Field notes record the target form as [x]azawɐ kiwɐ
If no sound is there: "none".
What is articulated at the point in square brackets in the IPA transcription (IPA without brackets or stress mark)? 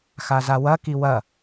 x